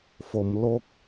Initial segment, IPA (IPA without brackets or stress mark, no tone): f